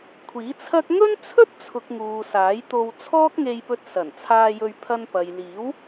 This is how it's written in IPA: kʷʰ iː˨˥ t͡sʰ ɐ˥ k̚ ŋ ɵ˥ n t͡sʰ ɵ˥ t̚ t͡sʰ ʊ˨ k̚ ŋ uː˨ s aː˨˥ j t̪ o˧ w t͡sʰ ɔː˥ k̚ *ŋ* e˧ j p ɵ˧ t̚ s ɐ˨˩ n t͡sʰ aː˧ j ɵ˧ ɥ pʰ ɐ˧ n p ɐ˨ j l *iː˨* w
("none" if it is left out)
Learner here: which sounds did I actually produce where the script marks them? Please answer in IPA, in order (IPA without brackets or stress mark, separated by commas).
ŋ, iː˨˥